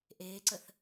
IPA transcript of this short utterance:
ʔ eː ǀ ə θ

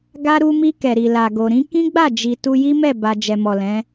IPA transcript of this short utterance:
ɡ a˦ ɾ u˧ m i˧ k ɛ˨ ɾ i˨ l a˨ ɡ o˨ ɾ ĩ˨˦ k ĩ˦ ɡ͡b a˦˨ d͡ʒ i˨ t u˧ j i˦ m ɛ˦˨ b a˧ d͡ʒ ɛ˨ m ɔ˨ l ɛ̃˨˦

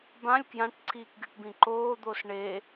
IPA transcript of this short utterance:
b ã lʲ k j ã ʈ ǀʰ iː k ɡʲ u ʈ b ĩ ǃ oː d̪ o s ɳ e

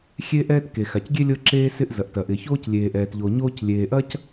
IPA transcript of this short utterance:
xʲ e˥ ʔ ɛː˥ t k e˩ x a˩ c ɡʲ e˥ lʲ ɤ˥ ǁ eː˥ s ɪ˥ ʔ z ɐ˩ ʔ t ɐ˩ ʔ ɪ˩ ç oː˥ c lʲ eː˩ ʔ ɛː˩ t ʎ o˩ ɲ oː˥ c lʲ eː˩ ʔ ɐ˥ c

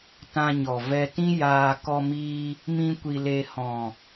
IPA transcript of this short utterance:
t ã˧ ɲ ɔ˨ v ɛ˧ t ĩ˦ j aː˧ k ɔ˧ m iː˧ | m ĩ˦ kʷ i˧ l e˧ h ɔ̃˨

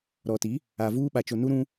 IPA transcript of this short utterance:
ɾ ɔ˨ t i˨˦ | a˨ v uː˦ ɓ a˨ t͡ʃ o˨ n u˦ ɾ ũ˦

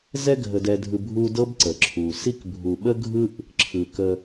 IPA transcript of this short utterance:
z ɛ˦ ɡʱ ə˨ d ɛ˨ dʱ ɯ˨ bʱ u˦ d ɤ˥ b ǀ ə˩ ǁʰ u˩ s i˦ k bʱ u˨ ɓ ə˥ ɡʱ ɯ˥ ʔ | ǁʰ ɯ˩ k ə˨

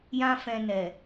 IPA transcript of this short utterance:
j ã˦ f ɛ̃˧ n ɛ˨

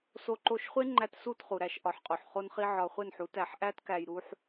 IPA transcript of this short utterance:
s o˧ ǃ o˧ ʃ χʷ e˦ ŋ͡ǃ æ˦ t s u˦˨ t χ u˨ ɾ æ˧ ʃ ʔ ɒ˨ ħ qʼ o˨ ħ χ o˧ n χ i˧ ʕ ɒ˨ χʷ e˦˨ n ħ u˨˦ t æ˨ ħ ʔ æ˦ t k æ˨ j ɾ u˧ ħ

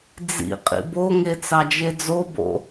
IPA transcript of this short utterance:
d͡z ḭ qʼ ḭ b o ŋ e t͡s ɑ d͡ʒ e d͡z o b o̰

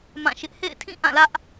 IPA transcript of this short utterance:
m ã˦˨ ʃ ɪ˦ ʔ h ḛ˦˨ ɪ̯ tʰ ĩ˦˨ ʔ ã˦˨ l ä˦ ʔ

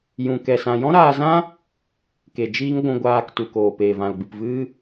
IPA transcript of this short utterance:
j ũ˧ k ɛ˧ s ã˧ j ɔ̃˦ ɾ aː˧ z ã˦ | k e˨ d͡ʒ iː˦ ŋ ɡʷ ũ˧ ɡʷ aː˧ k t u˨ k oː˨ p eː˨ v ã˨ l ɡ͡b ɨ˨ p v ɨ˦

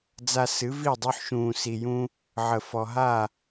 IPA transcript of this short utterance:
d͡z a˧ s ɨ˨˦ v i˦˨ dˤ ʉ˧ ħ ʃ ũː˨ s i˨ j ũː˧ | ʕ ə˨ f ɔ˨ ɦ aː˦˨

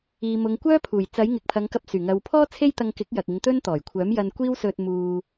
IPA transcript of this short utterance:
iː˨ m ʊ˨˧ ŋ kʷ œː˥ pʰ uː˨˩ j t͡s ɐ˨˥ j ŋ ɪ˨ k̚ pʰ ɐ˨˧ ŋ k ɐ˧ p̚ s yː˨˩ ŋ ɐ˨ w pʰ ɔː˥ t͡sʰ e˥ j t̪ ɐ˧ ŋ k ɪ˨˥ k̚ j ɐ˨ k̚ ɪ˨˧ ŋ t̪ ɵ˥ n t̪ ɔː˨˩ j kʷʰ œː˨˥ m j ɐ˧ n kʷ iː˥ w s ɵ˧ t̚ m uː˧

